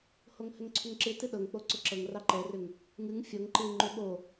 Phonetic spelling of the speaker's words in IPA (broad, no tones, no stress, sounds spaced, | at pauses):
h o ŋ h ʏ ŋ ǀʰ ʏ ŋ ǁ ɨ t ɨ ɗ ɤ ŋ k͡p o ǀ ʏ ǁ ɤ ŋ r ɑ ǃ ɛ r ʏ ŋ | ŋ ɨ ŋ fʲ ɤ ŋ ǃ ɨ ŋ͡ǃ ʏ ɓ o